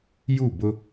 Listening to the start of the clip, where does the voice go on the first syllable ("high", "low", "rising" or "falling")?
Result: falling